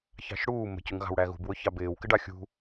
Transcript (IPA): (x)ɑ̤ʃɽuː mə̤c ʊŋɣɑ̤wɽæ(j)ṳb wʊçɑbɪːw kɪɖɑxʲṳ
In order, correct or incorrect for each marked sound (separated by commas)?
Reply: incorrect, incorrect